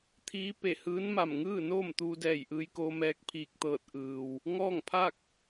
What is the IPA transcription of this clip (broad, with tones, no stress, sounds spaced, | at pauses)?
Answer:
t̪ʰ iː˧˥ p e˧˩ h ɯː˧˥ n m a˧˩ m ŋ ɯː˥˨ n oː˥˨ m t̪ uː˧ d ɛː˧˩ j ʔ ɯː˧ j k oː˧ m ɛː˧ k̚ pʰ iː˧˩ k̚ t̪ ɤː˧˩ t̚ ʔ ɯː˩ w | ŋ ɔː˥˨ ŋ pʰ a˥˨ k̚